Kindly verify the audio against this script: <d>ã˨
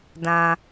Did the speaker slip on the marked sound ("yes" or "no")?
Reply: no